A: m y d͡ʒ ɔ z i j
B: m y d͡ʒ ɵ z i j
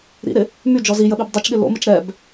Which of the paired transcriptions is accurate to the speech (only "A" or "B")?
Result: A